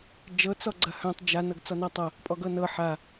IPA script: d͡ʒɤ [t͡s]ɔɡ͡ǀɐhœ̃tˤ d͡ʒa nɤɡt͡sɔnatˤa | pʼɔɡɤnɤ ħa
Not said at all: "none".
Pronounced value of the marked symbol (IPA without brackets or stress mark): t͡s